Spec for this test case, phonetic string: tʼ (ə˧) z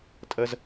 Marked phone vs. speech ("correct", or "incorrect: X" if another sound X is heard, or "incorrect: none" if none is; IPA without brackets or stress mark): correct